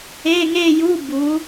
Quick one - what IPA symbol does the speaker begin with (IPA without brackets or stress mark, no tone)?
e